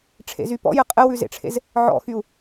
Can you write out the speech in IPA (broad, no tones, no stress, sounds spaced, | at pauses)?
ʈ͡ʂʰ ḛ z y p ɔ̰ j ɘ qʼ ɘ w ʉ z ḛ ʈ͡ʂʰ ḛ z | ʕ ɔ̰ x y u̯